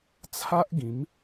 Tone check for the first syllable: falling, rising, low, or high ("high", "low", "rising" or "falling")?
high